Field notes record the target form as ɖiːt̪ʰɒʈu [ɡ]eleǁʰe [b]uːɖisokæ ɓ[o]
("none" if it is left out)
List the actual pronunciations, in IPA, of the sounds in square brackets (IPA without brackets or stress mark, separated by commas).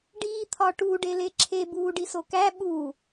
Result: ɖ, b, u